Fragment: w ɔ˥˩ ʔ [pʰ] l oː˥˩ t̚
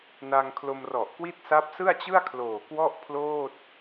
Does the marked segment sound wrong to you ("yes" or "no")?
no